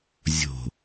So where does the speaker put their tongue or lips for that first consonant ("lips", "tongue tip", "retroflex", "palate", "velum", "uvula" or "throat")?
tongue tip